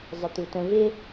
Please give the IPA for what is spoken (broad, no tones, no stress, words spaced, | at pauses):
zˤɪt̪utə̃ vɪ